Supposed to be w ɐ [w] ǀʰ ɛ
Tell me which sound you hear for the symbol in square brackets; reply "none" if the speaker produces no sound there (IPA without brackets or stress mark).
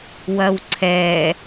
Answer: w